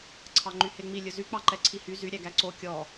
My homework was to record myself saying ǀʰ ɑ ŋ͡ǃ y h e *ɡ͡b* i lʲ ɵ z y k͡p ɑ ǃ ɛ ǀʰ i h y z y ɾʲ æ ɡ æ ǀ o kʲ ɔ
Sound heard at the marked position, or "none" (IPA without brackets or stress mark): ŋ͡m